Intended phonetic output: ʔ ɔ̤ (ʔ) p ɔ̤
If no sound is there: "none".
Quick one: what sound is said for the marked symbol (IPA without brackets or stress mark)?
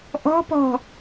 none